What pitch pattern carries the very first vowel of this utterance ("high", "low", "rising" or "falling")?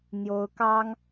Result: rising